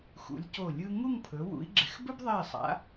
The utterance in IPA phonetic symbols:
x ṵ˩˧ lʲ c o˧˩ lʲ ɯ˧ ŋ u˥˧ ŋ pʰ ɵ˩˧ w ṵ˩˧ i̯ ɡ͡ǁ ɪ˩˧ x b ɵ˥ b ðˤ ɛ˧˩ i̯ sˤ a̰˩˧

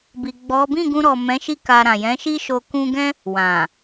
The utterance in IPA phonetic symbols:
b i˨ ɡ͡b ɔ˨˦ b ĩ˦˨ ɡ ũ˧ ɾ ɔ˨ m ɛ̃˨˦ ʃ i˧ k a˨ ɾ ã˨ j ɛ̃˨˦ ʃ i˦ ʃ o˧ k ũ˧ ɡ ɛ̃˦ | w ã˨

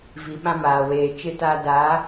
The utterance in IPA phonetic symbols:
v i˨ ɓ ã˦ m aː˨ w eː˨ t͡ʃ ɪ˦ t aː˦ d a˨˦

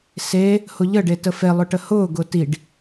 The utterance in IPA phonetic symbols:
s e | h ʊ ʎ ə ɖ e t ə f e lˠ ʊ ʈ ə h ʊː ɡ ʊː t i ɖ

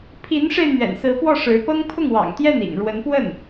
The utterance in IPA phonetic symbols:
pʰ i˧˥ n ʂ e˧ ɪ̯ n̪ ɥ ɛ̰˨˩ n s ɹ̩˧˥ p w ɔ˥˩ ʂ ɻ̩˧˥ p ɤ˥ ŋ pʰ ʊ˥˩ ŋ w ɑ̰˨˩ ŋ t̪ j ɛ˥˩ n ḭ˨˩ ŋ ɻ w ə˧˥ n p w ə˥˩ n

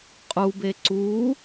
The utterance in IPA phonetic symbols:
qʼ u b e ǀ u

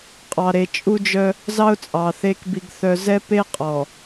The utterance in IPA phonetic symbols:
qʼ ɑ˨ ɾ e˨ t͡ʃʼ u˦ d͡ʒ œ˦ | z ɑ˦ ʊ̯ t͡sʼ ɑ˨ θ e˦ k b i˦ ɡ θ œ˦ z ɛ˦ p e˦ qʼ ɔ˨

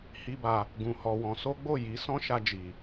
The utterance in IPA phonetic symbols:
h i˦ b a˧ | ɡ ũ˧ h ɔ˧ w ɔ̃˧ s o˦ ɡ͡b o˦˨ j i˨˦ s ɔ̃˦ ʃ a˧ d͡ʒ i˨

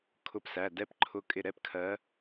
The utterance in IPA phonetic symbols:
kʰ ʊ˨˦ p s æ˩˧˩ d ɛ˦˥ p ǃʰ ʊ˨˦ kʼ ɪ˧˩ ɾ ɛ˥˩ p kʰ ɜ˨˦

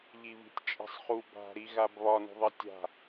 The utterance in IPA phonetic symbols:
ʎ i β i̤ tʲ t͡ʃʼ i̤ sˤ χ u b a̤ ɾ i ɣ a b β ɒ n ṳ ðˤ ʌ tʲ a̤

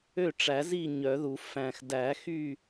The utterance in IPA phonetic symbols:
ø˥˨ ʈ͡ʂ æ˨˩˦ z i˥˨ ɲ œ˨˩˦ ð u˨˩˦ f æ̃˨˩ x d æ˨˩˦ x y˥˨

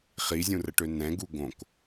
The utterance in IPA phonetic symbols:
χ i zʲ ũ r ə ʈ ø n ɛ̃ ɡ u ɡ õ k

